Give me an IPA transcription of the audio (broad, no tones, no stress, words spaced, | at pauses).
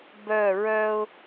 bœ ɹœʊ̯